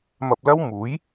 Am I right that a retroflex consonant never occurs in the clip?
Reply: yes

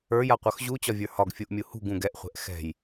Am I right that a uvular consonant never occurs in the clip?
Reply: no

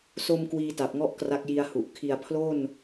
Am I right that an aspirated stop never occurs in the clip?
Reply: no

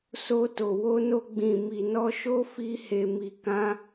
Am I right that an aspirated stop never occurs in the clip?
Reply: yes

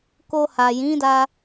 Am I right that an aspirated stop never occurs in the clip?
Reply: yes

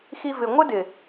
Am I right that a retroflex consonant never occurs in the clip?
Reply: yes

